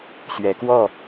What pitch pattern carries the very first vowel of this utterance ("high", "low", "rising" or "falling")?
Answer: rising